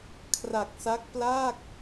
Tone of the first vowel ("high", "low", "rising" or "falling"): low